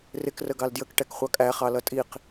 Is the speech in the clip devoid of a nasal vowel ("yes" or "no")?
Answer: yes